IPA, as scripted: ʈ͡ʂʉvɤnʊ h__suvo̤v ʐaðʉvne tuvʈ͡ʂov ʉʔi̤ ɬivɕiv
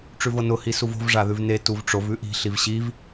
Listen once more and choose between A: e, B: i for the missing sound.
B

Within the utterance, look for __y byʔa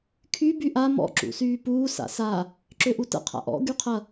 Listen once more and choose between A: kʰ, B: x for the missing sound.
A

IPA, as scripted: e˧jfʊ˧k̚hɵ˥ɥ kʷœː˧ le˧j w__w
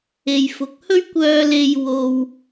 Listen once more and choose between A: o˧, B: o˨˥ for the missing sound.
A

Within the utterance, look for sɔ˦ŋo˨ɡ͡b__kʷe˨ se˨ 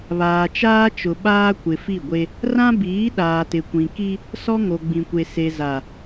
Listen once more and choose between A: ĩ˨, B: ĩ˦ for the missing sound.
A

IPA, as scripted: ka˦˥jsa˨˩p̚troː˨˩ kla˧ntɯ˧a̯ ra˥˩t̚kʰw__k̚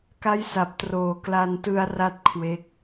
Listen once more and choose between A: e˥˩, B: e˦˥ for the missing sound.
B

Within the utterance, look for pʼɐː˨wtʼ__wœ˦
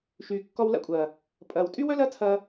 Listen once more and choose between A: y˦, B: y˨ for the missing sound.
A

